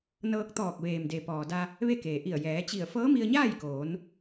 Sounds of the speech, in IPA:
n ɤː˧ k̚ t̪ ɔː˧˩ k̚ ʋ eː˩ m d e˩ p ɔː˩ d a˧ | ʋ e˥˨ k eː˩ ʔ i˧˩ ə̯ j ɛː˩˧ t͡ɕ i˧˩ ə̯ f ɤː˧˥ m i˧ ə̯ ɲ aː˥˨ j k oː˩˧ n

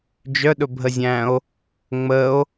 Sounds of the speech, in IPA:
d͡ʒ œ ɗ ɵ bʱ ə zʲ æ̃ o̯ | ŋ͡m ə o̯

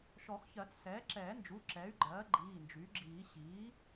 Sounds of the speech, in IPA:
ʃ ɔ˨˩˦ x ç ɜ˨˩˦ t͡s s ɛː˩˥ ǁ ɛː˨˩˦ n d͡ʒ u˩˧˩ ǁ ɛ˩˥ y̯ ɡ͡ǃ ɜː˩˥ ɡ͡ǃ iː˩˧˩ n d͡ʒ y˩˥ ɡ͡ǁ iː˨˩˦ ɕ iː˩˥

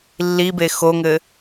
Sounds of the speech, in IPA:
lː i b e x o ŋ ɘ

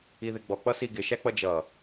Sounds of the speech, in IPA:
i ð ɪ ɡ͡b ɔ k͡p ʌ s i ɡ ɪ ʃ æ k͡p ʌ d͡ʒ ʌ

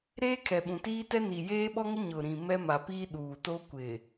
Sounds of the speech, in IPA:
ɾ eː˦ kʰ ɛ˨ ɓ ũ˨ t iː˦ t ɛ˦ n i˨ j eː˦ ɓ ɔ˦ ŋ ɪ˦ ɲ ʊ˨ ɾ ĩ˨ m ɛ˦ m a˨ p iː˦ ɗ uː˨ t o˦ kʷ ɪ˨

